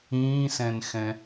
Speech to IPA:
ĩː s ɛ̃ n x ɛ̃

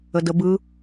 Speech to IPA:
ə d ə b ɯ

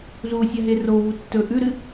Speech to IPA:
z u sʲ a ɦ e r o v u tː ɵ ʔ ʉ ɾ ɨ

